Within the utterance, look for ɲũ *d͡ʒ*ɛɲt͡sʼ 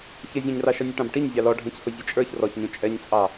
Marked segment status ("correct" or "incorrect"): incorrect